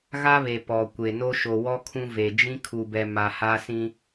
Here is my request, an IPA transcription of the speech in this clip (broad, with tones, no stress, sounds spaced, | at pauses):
ɣ a˦ β e˨ p ɔ˨ kʷ e˨ n o˦ ʃ o˨ w ɔ˦ kʰ ũ˦ v e˨ d͡ʒ ĩ˦ kʰ u˨ b ɛ˨ m a˨ h a˦ s ĩ˦